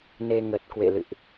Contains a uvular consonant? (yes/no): no